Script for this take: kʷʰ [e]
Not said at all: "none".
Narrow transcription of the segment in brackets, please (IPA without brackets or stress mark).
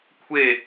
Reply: e